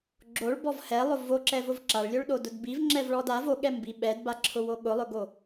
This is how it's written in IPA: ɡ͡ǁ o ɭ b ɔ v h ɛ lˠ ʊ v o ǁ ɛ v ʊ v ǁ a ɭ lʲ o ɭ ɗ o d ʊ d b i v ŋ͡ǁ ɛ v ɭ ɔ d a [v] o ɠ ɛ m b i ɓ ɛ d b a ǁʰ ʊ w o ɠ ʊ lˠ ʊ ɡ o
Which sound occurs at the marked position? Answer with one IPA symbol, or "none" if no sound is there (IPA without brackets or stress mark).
v